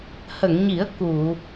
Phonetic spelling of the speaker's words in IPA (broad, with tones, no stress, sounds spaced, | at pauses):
h ə˨˩˨ ŋ ɲ i˨˩˦ ə̯ k u˨˩˨